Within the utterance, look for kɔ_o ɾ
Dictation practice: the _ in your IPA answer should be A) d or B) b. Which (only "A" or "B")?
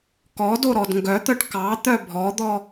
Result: A